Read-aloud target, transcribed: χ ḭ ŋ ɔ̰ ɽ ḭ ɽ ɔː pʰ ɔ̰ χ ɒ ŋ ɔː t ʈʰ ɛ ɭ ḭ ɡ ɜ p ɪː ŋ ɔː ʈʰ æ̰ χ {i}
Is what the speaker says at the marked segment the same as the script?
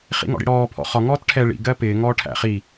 yes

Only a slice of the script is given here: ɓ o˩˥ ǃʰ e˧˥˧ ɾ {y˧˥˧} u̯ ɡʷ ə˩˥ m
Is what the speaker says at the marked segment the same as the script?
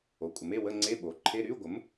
yes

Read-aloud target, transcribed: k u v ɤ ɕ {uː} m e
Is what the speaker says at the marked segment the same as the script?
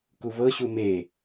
no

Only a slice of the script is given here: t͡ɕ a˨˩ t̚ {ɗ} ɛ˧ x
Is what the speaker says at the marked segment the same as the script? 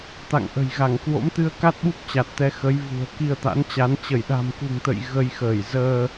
no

